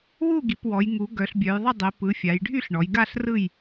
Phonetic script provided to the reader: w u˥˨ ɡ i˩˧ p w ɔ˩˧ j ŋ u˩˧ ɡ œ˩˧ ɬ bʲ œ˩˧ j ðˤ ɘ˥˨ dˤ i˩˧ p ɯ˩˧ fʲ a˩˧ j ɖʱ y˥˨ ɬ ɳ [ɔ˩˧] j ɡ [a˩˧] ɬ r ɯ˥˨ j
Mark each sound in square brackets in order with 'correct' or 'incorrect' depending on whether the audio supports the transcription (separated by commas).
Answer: correct, incorrect